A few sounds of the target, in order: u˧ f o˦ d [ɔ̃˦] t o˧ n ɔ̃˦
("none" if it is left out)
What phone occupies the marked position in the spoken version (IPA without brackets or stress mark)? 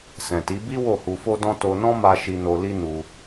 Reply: ɔ̃˦